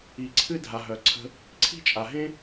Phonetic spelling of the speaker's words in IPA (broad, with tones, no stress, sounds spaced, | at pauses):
i˩ ǀʰ ɨ˧ dʱ a˩ ɦ œ˩ ǀʰ ə̤˧ | ǀʰ i̤˥ t͡ʃʼ a˩ ɦ ẽ˥